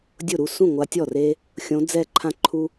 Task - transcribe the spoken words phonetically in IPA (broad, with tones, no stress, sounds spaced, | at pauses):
dʲ ʊ˥˩ ɾ u˥˩ s ũ˥˩ ŋʷ a˧˥ tʲ ɔ˥˩ r e˥ | xʲ õ˧˥ d͡z ɛ˥˧ ǃʰ ã˥ ǃʰ u˥